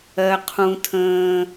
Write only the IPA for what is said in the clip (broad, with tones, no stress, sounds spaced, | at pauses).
ɜ˧ qʰ ũ˧ tʰ ə̃ː˧